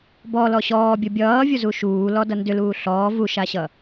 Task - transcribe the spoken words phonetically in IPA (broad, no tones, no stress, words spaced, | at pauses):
bɔlɔ ɕɔːbʲo bʲʌːvʲozu ʃuːlɔdʌ ndʏluː ɬɔː vuʃaɕʌ